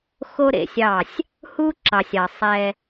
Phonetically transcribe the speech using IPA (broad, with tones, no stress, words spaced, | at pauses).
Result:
xo˦ɾḛ˨sʲɑ˦˨sʲ | hu˦ǁɑ˨sʲɑ˨ sˤɛ˦